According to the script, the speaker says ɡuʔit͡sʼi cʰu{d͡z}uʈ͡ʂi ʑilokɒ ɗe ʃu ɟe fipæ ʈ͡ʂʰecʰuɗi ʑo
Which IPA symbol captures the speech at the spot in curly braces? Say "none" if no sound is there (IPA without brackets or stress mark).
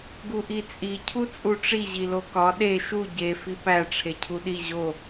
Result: t͡sʼ